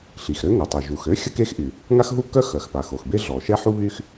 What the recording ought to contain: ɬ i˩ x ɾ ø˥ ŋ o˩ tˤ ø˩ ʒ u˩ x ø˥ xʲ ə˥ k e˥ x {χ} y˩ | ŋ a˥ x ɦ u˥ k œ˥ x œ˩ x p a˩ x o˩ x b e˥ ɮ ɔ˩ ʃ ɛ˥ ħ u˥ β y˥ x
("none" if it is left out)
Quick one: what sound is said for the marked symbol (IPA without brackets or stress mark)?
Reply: ʔ